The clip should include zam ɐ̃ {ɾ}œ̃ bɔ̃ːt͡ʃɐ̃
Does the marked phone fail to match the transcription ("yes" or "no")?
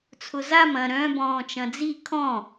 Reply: no